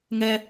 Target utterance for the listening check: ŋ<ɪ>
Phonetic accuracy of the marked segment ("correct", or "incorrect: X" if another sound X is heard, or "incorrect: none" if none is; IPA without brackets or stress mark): incorrect: ɛ